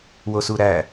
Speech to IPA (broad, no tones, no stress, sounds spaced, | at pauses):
w o s u ɾ æ